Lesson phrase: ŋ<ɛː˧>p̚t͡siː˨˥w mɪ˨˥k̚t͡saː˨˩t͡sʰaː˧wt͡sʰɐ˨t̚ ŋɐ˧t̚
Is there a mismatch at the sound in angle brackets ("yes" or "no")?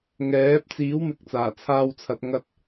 yes